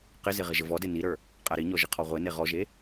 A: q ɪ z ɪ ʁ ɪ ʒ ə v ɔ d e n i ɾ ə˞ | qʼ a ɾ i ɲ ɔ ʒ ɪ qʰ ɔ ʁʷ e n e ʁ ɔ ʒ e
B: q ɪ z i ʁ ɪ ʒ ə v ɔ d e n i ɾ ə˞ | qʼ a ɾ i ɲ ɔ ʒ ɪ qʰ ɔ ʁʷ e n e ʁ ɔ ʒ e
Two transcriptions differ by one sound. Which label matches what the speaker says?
A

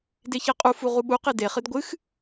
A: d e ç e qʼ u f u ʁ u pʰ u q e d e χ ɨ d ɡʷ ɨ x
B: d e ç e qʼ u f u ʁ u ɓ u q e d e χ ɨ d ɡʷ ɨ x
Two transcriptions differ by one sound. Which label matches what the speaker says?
B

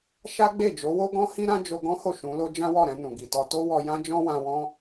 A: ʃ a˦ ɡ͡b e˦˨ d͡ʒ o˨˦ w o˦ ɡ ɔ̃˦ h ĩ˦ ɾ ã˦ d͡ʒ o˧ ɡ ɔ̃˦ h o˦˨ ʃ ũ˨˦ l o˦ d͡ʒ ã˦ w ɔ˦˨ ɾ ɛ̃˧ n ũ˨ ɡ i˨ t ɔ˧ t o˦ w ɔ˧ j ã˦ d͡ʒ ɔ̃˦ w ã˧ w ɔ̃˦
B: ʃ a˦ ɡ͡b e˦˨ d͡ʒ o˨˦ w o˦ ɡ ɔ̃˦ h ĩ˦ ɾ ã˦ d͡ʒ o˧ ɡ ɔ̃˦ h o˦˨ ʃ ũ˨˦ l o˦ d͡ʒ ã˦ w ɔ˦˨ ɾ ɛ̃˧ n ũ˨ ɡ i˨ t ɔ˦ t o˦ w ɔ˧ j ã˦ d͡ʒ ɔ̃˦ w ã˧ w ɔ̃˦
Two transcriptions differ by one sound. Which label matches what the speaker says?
A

